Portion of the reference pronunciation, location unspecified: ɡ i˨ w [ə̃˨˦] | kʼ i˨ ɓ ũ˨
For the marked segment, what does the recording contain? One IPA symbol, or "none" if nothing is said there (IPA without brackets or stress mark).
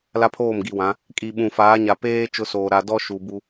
ã˨˦